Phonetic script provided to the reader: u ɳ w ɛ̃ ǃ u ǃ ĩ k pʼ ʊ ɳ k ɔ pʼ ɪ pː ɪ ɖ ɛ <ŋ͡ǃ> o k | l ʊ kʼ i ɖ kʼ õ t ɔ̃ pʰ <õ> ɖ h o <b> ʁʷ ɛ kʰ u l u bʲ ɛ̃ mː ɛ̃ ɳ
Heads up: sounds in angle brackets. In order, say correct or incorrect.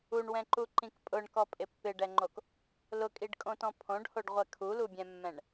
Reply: correct, correct, incorrect: ɖ

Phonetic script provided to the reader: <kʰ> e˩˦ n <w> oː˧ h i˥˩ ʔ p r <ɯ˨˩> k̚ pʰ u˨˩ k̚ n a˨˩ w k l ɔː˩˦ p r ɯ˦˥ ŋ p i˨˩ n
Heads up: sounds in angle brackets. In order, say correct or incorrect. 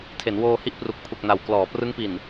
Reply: incorrect: tʰ, correct, incorrect: u˨˩

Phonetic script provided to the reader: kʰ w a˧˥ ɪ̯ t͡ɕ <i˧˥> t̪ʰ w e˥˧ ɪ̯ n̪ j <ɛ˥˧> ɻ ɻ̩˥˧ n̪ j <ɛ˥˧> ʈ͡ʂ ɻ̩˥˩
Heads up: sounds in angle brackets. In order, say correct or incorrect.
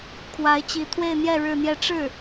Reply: correct, correct, correct

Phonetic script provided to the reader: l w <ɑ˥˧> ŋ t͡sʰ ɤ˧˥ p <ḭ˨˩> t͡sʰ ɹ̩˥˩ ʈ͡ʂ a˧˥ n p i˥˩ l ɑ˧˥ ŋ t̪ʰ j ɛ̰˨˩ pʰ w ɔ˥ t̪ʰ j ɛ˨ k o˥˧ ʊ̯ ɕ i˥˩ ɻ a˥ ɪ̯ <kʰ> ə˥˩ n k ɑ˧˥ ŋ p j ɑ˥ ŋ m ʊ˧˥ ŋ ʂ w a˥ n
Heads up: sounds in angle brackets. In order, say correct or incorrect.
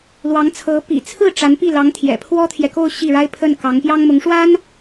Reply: incorrect: ɑ˧˥, correct, incorrect: pʰ

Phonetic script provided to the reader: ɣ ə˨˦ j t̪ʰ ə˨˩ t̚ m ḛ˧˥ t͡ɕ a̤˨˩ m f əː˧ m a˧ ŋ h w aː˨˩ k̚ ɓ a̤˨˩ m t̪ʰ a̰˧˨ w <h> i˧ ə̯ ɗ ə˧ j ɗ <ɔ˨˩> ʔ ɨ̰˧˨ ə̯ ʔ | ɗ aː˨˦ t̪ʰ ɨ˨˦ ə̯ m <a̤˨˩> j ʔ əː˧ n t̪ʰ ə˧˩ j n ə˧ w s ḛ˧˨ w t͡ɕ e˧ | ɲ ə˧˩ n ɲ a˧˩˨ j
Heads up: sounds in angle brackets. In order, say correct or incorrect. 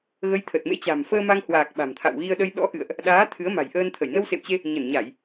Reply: incorrect: ɣ, incorrect: ɔ̰˧˥, correct

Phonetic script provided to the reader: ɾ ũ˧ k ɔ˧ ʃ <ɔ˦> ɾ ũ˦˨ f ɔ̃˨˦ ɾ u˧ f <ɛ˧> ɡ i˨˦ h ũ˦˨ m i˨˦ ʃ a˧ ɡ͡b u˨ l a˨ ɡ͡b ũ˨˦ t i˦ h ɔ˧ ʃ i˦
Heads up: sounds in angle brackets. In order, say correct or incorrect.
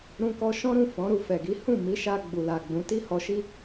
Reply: incorrect: ɔ̃˦, incorrect: ɛ˨

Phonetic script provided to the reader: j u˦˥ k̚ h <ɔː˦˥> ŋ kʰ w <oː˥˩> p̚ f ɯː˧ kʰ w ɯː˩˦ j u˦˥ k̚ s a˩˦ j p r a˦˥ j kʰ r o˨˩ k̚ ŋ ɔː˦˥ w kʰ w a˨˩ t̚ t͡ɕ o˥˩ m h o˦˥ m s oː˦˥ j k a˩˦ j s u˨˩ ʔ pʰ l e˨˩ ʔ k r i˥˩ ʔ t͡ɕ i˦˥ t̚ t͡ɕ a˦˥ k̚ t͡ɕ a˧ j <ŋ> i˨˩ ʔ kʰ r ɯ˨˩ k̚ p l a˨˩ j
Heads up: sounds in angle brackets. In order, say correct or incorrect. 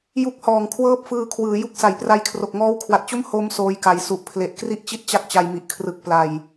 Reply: incorrect: ɔː˨˩, incorrect: ɤː˥˩, incorrect: m

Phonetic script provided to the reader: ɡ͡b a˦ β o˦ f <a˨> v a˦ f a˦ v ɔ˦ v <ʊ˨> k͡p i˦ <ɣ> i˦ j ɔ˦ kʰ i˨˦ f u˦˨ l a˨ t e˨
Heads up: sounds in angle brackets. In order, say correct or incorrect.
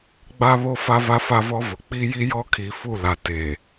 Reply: incorrect: a˦, correct, incorrect: j

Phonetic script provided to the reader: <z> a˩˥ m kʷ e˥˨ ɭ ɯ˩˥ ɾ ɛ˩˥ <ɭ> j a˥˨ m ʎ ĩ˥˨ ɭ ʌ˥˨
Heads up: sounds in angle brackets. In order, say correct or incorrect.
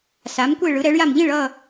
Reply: incorrect: s, correct

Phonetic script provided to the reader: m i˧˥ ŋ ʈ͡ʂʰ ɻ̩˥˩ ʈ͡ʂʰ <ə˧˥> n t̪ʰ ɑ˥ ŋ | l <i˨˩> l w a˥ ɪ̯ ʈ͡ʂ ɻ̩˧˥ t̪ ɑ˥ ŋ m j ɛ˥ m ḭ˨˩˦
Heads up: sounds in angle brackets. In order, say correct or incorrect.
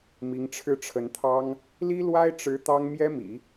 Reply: correct, incorrect: i˥

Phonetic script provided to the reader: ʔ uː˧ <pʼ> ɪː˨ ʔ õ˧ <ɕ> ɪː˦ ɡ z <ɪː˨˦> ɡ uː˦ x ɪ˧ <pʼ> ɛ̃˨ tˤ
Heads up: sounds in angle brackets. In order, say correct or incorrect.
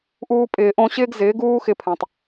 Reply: correct, correct, correct, incorrect: pʰ

